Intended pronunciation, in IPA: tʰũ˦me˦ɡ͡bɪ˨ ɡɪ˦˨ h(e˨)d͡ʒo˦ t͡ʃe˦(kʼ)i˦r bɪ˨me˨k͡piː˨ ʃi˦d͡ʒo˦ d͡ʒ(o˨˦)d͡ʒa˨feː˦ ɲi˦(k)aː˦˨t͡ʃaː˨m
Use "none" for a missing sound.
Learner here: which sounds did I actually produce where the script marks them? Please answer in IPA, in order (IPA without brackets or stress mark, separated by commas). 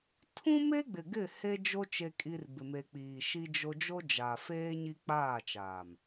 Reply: e˦, kʼ, o˦, k͡p